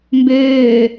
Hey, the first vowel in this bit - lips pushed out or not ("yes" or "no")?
yes